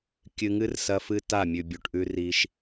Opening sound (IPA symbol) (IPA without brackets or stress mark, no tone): kʲ